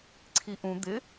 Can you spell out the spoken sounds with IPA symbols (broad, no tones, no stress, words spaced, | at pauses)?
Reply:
ǀʰiʔũ d̪ɪ